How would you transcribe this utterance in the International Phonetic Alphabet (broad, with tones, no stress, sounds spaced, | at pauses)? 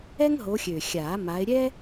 ɛ˥ ŋ ɦ o˨˦ xʲ ø˨˩ xʲ aː˨˩˦ m a˨˦ ɪ̯ ɾʲ ɛ˥